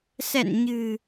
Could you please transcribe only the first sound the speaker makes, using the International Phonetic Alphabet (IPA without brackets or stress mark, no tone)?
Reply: s